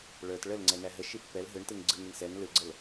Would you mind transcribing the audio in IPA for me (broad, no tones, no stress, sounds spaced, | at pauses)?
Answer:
ɭ ə˞ t ɭ ə l ŋ͡ǀ ɛ n æ ɦ ə ʃ i pː ɛ l ɦ ɯ ɳ t ɯ ŋ ɡ͡ǀ ɯ ŋ i ɳ s ɛ n l ɯ ɡ͡ǀ ə l